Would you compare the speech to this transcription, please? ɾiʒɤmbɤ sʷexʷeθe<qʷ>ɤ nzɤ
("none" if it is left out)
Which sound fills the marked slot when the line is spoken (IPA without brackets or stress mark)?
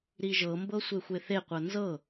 qʷ